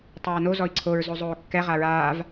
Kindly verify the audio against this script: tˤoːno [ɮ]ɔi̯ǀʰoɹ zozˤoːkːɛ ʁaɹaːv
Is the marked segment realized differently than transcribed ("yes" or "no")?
yes